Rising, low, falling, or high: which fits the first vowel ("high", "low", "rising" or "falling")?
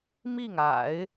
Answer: falling